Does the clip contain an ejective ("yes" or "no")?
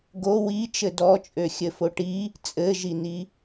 yes